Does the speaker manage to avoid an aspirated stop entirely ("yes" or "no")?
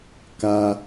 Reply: yes